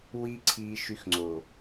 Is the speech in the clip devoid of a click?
no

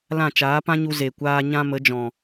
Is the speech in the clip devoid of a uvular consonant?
yes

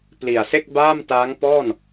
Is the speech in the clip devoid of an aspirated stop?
yes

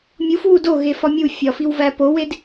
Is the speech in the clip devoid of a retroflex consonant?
yes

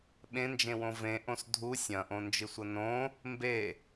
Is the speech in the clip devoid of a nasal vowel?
no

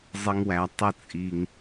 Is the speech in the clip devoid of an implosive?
yes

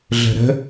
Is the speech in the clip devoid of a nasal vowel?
yes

